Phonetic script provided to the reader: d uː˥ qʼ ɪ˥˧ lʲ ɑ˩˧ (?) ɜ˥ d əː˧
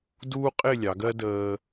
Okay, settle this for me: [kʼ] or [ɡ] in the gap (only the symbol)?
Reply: ɡ